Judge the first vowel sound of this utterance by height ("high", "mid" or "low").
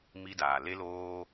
high